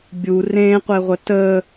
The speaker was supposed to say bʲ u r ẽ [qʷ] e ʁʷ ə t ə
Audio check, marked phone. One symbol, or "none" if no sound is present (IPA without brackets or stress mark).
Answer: qʷ